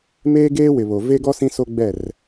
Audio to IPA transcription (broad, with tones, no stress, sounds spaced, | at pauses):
m eː˦ ɡ eː˦ w ɪ˨ β o˨ v e˦ ɡ ɔ˦ s ĩ˦ s o˦ ɡ͡b ɛ˦˨ r